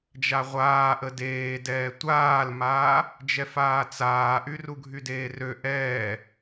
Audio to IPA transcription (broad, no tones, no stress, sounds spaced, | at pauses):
d͡ʒ a ʁʷ aː ʔ ə d eː d ɛː tʷ aː l m aː | d͡ʒ ɛ f aː t͡s aː ʔ y r u ɡʱ y d eː r ø ʔ ɛː